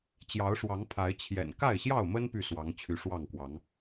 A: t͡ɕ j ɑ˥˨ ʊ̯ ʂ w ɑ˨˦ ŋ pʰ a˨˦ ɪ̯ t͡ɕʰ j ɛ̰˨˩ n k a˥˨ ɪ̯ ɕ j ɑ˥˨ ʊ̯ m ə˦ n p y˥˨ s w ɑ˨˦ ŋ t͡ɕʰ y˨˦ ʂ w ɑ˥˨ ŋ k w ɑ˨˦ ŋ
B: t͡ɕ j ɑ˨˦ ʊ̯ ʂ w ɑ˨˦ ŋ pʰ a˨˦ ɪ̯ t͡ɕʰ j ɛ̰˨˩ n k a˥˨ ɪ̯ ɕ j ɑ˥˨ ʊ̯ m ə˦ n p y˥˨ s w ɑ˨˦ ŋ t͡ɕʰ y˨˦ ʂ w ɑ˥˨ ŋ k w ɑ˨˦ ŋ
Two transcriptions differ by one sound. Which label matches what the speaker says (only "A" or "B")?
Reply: B